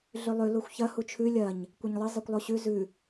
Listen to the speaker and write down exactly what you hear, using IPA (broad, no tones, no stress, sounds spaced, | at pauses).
ɮ ʉ lˠ ʉ l o xʷ ç ɐ h u t͡ʃʰ ʉ lʲ ɐ ɲ | kʷ ɐ ɲ lˠ ɨ zˤ i kʷ lˠ o ɕ ʉ z ʉ